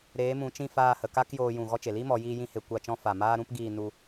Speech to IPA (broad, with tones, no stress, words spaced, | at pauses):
ɾeː˨˦mũ˨˦t͡ʃĩ˦˨ faː˦˨hə˨ ka˦k joː˧jũ˨ ɣɔ˦t͡ʃe˨ li˦ mɔ˨˦ jiː˦jĩ˦he˧ kʷa˦˨t͡ʃɔ̃˦ fa˨maː˦ɾũ˦p ɡiː˦˨nu˧